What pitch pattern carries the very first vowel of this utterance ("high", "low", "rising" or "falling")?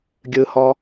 low